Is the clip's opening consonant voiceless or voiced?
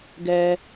voiced